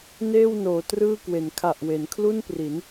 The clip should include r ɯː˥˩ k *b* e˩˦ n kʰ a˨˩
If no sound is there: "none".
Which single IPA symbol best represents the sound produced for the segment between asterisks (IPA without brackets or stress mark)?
w